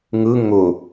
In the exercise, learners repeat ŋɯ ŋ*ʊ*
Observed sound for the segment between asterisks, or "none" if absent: ʊ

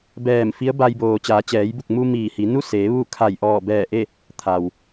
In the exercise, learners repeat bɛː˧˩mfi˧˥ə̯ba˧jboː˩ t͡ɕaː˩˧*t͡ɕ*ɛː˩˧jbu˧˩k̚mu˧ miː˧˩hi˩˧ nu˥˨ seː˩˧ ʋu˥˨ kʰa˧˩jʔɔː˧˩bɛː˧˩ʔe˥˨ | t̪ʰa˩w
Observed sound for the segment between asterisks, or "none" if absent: t͡ɕ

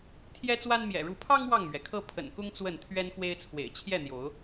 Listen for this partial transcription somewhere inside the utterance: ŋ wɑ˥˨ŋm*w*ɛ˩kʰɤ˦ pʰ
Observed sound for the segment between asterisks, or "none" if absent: ɥ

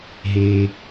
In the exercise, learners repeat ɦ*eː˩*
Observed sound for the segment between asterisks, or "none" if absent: eː˩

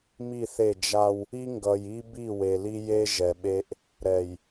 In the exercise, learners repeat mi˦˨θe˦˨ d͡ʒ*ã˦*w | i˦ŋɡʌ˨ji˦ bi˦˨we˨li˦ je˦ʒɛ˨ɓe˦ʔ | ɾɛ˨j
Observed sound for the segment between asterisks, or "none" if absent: a˦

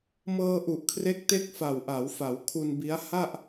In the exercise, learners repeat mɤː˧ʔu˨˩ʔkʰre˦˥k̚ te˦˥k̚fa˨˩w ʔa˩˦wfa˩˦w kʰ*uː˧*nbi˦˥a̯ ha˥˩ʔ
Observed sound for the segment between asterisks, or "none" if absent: u˧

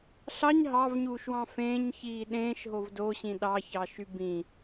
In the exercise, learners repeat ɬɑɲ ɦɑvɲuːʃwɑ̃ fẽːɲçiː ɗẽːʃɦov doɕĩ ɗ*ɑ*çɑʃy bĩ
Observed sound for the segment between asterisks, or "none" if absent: ɑ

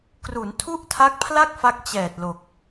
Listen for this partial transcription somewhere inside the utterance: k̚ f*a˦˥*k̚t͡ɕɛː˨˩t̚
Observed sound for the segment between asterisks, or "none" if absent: a˦˥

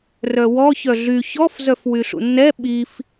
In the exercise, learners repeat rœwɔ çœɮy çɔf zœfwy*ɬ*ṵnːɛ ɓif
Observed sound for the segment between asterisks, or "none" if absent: ɬ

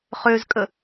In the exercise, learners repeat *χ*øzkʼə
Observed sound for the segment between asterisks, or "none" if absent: χ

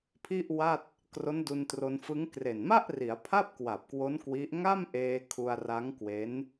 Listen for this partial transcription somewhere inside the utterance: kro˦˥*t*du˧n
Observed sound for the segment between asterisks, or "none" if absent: n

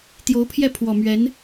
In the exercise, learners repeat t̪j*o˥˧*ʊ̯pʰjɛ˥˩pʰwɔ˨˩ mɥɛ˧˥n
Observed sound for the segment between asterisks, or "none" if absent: o˧˥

